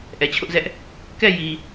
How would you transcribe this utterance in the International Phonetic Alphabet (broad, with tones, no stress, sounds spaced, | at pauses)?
ʔ ɛ˨ t͡ɕʰ ʊ˦ ʔ z ɛ˦ ʔ | k ɛ˦˨ j i˨